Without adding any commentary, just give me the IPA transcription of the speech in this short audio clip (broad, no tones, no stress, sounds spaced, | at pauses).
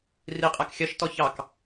r i qʼ æ k xʲ ɜ ʃ t ɔ ç ɑ k